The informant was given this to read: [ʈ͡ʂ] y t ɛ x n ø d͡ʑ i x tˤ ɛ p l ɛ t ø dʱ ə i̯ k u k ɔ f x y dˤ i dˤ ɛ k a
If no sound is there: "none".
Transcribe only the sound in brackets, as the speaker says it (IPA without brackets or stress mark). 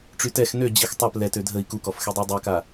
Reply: ʈ͡ʂ